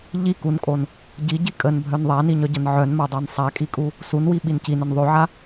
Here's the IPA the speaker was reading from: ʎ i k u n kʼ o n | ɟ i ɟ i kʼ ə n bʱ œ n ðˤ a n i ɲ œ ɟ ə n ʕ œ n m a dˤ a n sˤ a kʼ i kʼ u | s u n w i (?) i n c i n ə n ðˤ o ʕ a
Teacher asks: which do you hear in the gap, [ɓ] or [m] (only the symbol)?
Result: ɓ